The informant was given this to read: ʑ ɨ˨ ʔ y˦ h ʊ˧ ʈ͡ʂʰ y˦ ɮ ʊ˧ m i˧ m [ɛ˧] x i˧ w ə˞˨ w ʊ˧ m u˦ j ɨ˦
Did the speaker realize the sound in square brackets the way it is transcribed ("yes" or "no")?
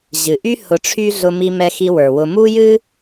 yes